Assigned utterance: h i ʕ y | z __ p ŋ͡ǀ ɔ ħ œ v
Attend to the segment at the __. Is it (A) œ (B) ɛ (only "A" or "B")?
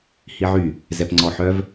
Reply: B